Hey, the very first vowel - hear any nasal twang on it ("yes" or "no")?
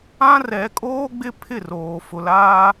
yes